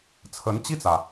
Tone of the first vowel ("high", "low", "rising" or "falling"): rising